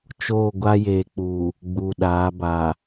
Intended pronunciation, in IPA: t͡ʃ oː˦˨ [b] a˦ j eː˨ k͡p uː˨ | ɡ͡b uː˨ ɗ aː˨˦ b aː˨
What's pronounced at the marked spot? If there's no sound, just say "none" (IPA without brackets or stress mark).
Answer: ɡʷ